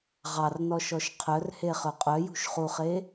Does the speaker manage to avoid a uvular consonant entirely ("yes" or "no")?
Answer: no